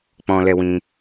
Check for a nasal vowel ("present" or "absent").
present